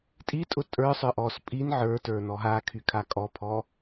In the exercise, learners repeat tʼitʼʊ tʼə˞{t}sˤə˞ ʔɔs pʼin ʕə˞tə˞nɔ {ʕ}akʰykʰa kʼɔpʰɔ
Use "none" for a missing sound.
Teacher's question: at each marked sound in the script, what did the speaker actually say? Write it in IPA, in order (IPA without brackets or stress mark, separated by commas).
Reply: none, ɦ